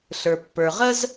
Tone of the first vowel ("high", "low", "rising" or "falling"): low